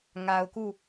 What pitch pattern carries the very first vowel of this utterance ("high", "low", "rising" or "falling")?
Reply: low